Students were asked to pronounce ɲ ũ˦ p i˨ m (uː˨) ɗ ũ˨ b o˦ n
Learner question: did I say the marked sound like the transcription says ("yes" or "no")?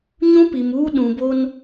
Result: no